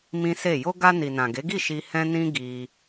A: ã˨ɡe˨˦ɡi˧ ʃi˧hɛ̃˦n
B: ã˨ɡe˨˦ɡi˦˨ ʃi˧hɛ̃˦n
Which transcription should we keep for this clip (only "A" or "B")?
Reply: B